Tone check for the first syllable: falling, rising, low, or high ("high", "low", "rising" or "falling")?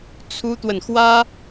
high